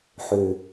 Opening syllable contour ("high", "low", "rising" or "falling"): low